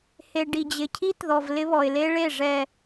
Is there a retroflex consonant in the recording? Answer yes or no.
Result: yes